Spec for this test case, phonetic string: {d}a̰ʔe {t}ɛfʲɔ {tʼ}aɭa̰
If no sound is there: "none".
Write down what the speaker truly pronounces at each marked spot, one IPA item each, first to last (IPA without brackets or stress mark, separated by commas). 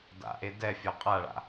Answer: d, d, qʼ